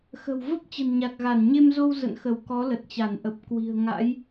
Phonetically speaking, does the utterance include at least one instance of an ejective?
no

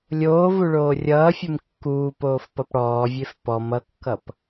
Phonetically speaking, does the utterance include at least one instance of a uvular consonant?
no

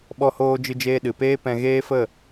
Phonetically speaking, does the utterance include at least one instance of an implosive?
yes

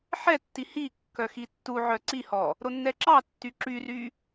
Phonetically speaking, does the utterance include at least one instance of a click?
yes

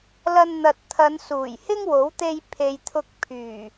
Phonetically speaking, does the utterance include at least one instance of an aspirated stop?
yes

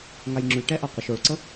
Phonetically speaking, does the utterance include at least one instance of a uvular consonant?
yes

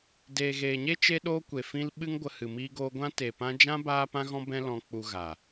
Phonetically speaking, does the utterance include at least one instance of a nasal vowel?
yes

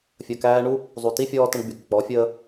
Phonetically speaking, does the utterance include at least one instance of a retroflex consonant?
yes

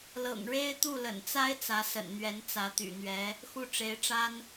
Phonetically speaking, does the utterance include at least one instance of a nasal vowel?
no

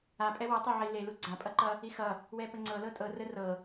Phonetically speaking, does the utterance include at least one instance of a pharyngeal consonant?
yes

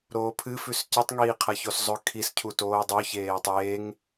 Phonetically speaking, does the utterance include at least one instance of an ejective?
no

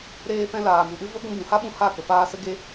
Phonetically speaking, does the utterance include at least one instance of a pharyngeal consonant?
no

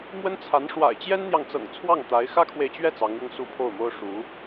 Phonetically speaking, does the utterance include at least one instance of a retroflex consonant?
yes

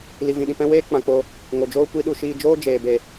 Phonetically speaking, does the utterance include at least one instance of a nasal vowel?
yes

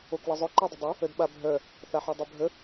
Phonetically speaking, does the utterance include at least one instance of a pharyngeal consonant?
yes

